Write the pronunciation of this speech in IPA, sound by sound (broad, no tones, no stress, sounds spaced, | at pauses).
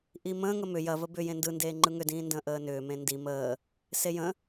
ʔ i m ə̃ː ŋ ə m ʏ j ɐ v ə b ʏ j ẽ n d ɯ n d eː ŋ͡ǃ ɯ ŋ ʏ d ĩː n d ə̃ː ʔ əː n ʏː m ẽ n d i m əː | s e j ə̃